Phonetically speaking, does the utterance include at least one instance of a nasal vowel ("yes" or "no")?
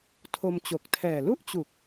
no